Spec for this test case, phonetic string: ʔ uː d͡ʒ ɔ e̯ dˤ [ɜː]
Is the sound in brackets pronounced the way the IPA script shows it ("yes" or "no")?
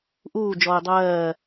yes